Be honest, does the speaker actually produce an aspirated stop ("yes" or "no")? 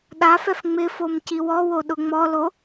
no